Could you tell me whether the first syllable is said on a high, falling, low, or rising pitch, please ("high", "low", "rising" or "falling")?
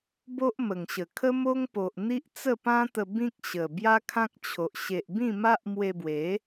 high